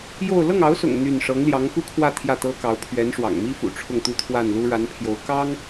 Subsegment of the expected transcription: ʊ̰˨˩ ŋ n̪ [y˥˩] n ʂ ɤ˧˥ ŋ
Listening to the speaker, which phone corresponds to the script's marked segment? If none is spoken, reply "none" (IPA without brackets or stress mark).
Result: y˥˩